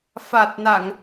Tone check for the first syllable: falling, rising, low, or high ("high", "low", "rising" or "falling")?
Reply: low